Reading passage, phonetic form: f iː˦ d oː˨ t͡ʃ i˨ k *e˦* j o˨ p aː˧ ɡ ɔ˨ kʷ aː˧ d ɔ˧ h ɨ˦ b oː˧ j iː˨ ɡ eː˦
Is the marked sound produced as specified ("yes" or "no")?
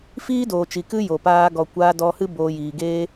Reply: no